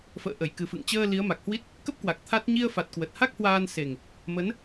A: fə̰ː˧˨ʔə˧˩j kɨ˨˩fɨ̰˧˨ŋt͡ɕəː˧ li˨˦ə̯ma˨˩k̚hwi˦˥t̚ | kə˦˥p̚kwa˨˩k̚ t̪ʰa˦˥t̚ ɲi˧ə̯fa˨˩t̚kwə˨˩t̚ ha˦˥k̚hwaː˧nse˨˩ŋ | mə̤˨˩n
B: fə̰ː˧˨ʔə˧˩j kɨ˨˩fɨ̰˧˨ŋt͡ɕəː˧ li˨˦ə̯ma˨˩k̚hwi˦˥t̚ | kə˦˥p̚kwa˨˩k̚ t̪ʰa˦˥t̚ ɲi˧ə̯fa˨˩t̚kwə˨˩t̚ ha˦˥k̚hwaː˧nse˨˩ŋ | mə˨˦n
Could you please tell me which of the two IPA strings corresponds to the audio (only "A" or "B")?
B